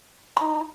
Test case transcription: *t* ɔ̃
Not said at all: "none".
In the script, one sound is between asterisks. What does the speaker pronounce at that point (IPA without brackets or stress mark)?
ǃ